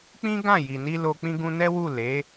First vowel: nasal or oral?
nasal